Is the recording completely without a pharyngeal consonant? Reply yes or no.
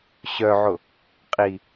no